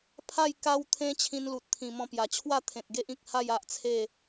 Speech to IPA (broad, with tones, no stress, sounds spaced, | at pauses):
pʰ a˥˧ j k a˦ w t̪ʰ ẽ˦ t͡ɕʰ ĩ˧ n l u˨ t̚ t̪ʰ ĩ˨˩ m ɔ̃˧ p j a˨˩ t͡ɕʰ w a˥˧ t̪ʰ ẽ˨ t̚ ɡ e˦ ʔ ĩ˨ k̚ h a˥˧ j a˦ ʔ t͡sʰ e˥˧